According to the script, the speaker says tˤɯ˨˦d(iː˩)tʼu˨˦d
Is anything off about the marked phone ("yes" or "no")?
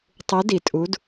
yes